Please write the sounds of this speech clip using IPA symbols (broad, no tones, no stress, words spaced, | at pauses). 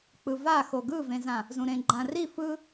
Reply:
k͡pɯva xoɡɯvẽzã | zũɾẽɡ͡ǃãri fɯ